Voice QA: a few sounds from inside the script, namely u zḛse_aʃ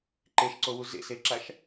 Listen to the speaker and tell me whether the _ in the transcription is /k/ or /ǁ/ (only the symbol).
ǁ